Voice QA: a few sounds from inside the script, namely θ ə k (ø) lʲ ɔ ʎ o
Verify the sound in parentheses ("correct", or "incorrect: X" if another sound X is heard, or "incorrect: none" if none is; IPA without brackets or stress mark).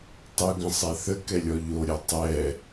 incorrect: ɛ